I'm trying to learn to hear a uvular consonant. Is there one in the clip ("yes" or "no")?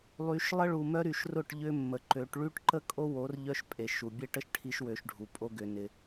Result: no